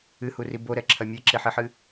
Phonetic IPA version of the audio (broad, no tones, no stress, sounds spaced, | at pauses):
ɨ h u r i b o ɾ ɛ ǁʰ ɐ mʲ e ǁ e ħ i ħ ɨ